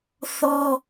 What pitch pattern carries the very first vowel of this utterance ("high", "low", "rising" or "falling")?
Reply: high